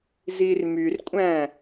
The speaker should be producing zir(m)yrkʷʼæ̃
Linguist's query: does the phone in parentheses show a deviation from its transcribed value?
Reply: no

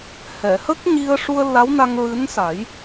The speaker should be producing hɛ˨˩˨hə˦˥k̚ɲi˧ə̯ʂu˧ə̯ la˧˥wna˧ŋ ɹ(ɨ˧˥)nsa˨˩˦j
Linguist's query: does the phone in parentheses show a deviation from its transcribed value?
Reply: no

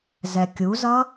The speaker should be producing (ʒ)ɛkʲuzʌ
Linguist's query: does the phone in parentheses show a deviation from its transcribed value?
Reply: yes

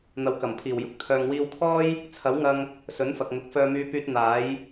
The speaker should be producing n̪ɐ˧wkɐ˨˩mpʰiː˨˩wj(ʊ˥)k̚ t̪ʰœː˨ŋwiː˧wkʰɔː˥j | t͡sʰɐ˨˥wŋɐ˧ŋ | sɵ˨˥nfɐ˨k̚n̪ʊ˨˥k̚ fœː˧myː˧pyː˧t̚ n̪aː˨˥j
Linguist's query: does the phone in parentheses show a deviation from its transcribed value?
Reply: no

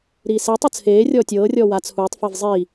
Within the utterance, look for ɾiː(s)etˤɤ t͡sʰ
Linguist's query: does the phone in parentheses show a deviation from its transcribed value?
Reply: no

